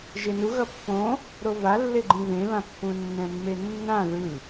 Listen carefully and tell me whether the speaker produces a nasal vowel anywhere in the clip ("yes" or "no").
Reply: yes